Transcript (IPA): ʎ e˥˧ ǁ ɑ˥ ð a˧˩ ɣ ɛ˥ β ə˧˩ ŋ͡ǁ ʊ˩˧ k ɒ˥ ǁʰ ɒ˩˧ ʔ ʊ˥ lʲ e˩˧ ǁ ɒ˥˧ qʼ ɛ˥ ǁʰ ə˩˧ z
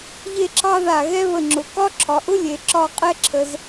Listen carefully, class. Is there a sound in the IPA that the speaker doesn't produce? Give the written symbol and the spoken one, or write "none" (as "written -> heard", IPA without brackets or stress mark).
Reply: none